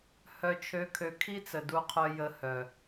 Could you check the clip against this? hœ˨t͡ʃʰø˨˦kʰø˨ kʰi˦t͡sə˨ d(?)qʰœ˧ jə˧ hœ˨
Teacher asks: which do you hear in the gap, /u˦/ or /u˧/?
u˧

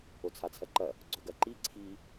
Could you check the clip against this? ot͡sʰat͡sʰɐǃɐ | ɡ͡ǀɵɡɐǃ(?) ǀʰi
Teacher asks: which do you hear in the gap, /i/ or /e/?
i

